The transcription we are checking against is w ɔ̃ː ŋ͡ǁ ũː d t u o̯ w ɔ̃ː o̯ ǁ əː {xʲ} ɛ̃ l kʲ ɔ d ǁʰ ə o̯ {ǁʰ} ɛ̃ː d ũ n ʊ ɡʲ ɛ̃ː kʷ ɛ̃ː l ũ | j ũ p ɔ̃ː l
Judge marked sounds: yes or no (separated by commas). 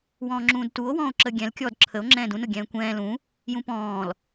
no, no